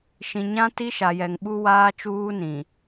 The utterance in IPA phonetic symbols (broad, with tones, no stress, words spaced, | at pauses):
ʃĩ˨ɲã˦ ti˦ʃa˨jɛ˨ŋ ɓu˦waː˦ t͡ʃuː˦nĩ˨